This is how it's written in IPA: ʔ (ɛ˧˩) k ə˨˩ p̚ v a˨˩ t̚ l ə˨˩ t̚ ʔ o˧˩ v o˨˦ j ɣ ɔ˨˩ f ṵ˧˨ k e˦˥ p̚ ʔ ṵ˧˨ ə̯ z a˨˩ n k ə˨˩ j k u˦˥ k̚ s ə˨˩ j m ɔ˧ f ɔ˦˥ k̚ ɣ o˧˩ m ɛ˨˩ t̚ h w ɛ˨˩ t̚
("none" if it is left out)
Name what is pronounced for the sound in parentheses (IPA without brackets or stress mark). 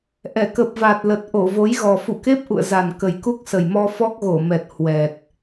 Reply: ɛ˧˩